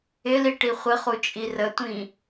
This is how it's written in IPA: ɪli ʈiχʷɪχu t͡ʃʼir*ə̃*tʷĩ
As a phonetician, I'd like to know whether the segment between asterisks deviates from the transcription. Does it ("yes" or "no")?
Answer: yes